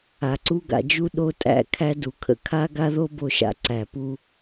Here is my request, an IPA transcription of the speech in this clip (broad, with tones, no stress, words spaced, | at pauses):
a˨ǀu˦ɡa̰˧d͡ʒu˦ ɗo˦tʼæ̰˦ kʰæ˦du˨kʰə̰˧ kʰa˦ ɡa˦ðo˦bo˧ʃa̰˧ ǀæ˨pu˦